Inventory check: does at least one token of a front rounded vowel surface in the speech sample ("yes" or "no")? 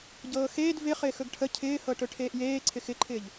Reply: no